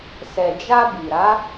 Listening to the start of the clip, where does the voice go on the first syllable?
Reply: low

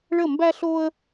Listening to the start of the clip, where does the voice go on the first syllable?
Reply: falling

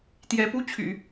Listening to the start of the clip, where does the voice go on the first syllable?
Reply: rising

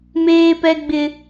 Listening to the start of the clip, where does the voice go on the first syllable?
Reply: high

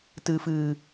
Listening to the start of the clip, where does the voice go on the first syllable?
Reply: low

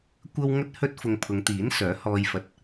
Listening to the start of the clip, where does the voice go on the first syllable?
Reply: high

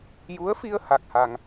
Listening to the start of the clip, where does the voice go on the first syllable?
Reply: rising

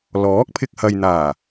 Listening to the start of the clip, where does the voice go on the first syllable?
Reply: rising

